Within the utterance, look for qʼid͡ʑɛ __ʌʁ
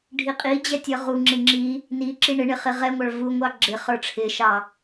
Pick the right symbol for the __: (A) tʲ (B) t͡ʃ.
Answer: A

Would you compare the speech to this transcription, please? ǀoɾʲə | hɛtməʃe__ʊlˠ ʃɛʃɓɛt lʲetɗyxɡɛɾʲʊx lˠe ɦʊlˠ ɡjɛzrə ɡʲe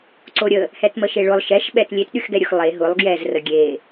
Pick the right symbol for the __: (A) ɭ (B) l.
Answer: A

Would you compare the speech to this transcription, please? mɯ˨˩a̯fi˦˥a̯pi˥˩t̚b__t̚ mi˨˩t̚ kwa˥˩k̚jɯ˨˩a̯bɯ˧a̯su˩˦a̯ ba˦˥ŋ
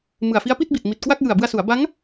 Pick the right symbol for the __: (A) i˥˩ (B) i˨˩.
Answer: B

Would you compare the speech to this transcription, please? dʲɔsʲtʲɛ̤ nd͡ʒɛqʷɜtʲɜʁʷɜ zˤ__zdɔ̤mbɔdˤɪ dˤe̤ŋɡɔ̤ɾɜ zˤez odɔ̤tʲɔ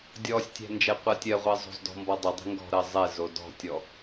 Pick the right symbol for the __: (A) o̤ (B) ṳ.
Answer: A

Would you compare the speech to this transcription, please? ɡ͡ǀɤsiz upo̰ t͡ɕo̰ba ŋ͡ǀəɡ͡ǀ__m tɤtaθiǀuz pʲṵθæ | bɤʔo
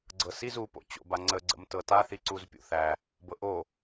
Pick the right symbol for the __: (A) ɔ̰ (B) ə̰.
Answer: B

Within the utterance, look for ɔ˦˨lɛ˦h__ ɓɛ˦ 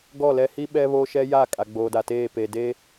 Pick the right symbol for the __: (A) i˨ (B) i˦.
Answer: B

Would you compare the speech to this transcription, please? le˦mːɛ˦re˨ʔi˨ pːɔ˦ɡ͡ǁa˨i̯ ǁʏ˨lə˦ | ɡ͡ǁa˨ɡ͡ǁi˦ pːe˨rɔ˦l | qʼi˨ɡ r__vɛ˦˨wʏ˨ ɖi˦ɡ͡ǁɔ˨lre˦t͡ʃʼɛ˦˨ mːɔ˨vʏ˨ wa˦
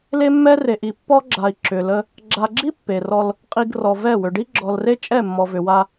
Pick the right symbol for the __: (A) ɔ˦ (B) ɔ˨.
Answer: B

